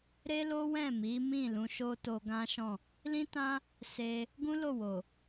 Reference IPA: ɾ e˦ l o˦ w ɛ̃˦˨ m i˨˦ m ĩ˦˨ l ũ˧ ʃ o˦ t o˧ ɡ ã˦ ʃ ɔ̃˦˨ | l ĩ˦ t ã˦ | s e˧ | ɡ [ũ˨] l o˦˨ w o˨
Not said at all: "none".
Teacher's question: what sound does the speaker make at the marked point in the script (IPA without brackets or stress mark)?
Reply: ũ˦